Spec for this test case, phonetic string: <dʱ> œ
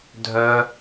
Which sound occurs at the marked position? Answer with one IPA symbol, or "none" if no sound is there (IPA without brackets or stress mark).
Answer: dʱ